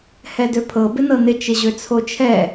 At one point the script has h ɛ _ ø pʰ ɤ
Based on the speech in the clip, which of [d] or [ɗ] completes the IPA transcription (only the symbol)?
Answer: d